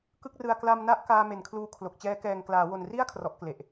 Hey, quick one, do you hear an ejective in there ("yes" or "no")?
no